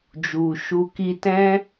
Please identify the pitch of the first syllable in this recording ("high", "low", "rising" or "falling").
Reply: low